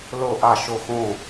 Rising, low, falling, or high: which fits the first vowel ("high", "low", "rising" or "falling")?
falling